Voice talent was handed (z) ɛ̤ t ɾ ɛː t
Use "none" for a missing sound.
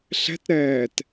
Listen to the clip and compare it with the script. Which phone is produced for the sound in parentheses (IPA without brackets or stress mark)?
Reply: ɬ